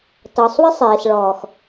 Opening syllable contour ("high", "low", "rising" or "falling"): low